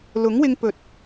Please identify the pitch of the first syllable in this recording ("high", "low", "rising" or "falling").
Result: rising